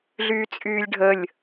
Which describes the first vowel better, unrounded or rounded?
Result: rounded